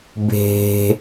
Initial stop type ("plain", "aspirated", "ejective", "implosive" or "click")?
plain